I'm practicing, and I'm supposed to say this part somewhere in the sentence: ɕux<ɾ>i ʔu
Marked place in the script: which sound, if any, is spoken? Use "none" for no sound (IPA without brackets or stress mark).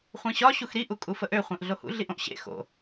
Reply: ɾ